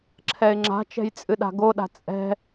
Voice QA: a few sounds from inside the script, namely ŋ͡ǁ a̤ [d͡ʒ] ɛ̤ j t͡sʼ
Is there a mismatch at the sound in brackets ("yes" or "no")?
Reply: yes